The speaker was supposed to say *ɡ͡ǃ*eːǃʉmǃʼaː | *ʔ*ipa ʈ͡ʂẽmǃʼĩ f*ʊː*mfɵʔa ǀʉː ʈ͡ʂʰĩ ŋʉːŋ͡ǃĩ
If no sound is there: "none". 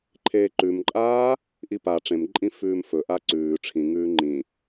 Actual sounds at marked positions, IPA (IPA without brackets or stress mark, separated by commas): ǃʰ, ʔ, ʉː